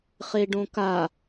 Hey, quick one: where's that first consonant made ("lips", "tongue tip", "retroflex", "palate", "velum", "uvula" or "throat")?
uvula